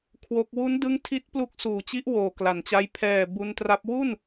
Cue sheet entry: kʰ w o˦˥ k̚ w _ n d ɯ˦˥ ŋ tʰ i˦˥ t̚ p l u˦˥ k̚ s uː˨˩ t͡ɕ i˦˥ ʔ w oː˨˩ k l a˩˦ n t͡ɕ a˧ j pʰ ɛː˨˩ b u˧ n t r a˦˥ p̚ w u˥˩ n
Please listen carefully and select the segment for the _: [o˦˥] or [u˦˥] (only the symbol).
u˦˥